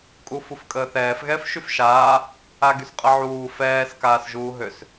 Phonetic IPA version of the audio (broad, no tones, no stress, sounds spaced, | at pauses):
kʼ u f u f kʼ əː θ ɛː f ɣ ɛː f ʃ y f ʃ aː | a ɡ y s qʼ ə ʕ uː f ɛː s k aː s ʒ uː ɦ ø s